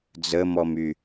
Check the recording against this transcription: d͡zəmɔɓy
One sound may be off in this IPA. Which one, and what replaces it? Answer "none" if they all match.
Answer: ɓ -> m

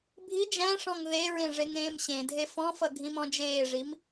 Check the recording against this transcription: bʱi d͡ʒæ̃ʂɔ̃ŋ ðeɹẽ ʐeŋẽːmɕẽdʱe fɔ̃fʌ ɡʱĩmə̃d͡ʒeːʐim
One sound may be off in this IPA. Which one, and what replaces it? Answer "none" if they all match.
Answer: ə̃ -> ɔ̃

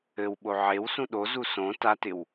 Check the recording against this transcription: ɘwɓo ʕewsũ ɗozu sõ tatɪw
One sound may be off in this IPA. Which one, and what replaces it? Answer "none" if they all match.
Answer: none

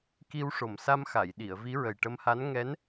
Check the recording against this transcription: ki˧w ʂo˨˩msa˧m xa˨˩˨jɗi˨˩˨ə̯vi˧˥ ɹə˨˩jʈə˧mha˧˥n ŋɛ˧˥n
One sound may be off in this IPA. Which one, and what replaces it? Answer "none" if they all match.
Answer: none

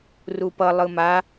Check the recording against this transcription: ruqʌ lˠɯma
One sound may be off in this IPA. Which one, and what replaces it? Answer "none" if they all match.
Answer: q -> p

